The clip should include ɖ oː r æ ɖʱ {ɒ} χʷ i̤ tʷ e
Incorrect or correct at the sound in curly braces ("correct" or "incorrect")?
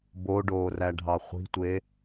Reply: incorrect